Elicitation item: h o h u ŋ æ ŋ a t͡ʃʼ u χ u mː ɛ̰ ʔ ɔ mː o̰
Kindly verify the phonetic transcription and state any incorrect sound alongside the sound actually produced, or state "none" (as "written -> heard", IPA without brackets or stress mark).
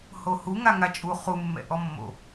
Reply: æ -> a